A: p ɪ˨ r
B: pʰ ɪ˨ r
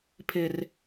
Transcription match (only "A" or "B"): B